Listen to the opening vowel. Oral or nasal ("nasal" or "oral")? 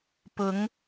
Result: oral